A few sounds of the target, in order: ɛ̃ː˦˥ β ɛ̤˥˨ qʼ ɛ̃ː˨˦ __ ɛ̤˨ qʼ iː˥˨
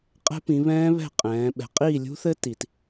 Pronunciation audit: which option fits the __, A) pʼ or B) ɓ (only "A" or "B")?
B